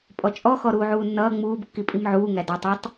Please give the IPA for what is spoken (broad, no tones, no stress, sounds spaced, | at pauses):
pʼ ɔ t͡ʃʼ ɔ x ɔ ɾ uː ʕ uː nː ʌː ŋ͡m uː b kː i pʼ i m ʕ uː ŋ æ d ɔ tˤ u tˤ